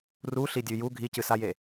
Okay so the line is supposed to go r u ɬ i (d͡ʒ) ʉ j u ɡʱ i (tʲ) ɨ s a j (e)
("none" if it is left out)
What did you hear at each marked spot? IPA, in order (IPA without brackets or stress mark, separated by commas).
dʲ, c, e